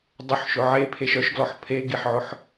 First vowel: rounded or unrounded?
rounded